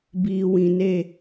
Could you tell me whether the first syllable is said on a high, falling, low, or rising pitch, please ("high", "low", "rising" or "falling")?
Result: low